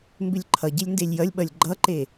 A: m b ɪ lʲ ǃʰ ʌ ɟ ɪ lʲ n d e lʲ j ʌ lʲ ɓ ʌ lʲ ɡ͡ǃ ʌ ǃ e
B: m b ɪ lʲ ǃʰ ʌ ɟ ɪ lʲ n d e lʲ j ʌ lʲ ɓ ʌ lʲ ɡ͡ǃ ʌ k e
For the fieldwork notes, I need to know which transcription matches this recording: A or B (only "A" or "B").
A